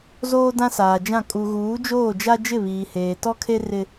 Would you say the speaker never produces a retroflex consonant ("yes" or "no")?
yes